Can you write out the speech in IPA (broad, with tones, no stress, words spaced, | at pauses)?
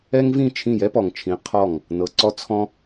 ɛ˦ŋvĩ˦˨t͡ʃʰĩ˦˨ jɛ˦pɔ˨ŋt͡ʃʰĩ˨˦ qʰɔ˦˨ŋ | nɤ˨ǀɔ˦ t͡sʰɔ̃˦